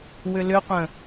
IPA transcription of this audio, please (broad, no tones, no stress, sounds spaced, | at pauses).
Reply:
w ʏ l ʏ qʷ ə̃